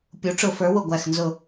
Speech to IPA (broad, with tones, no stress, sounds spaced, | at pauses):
pʲ u˩˥ ʈ͡ʂ ʊ˧˩˧ f ə˞˩˥ w ʊ˧˩ ɡʷ æ˧˩ x n z ʊ˧˩